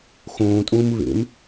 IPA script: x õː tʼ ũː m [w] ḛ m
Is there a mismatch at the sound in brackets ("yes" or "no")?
yes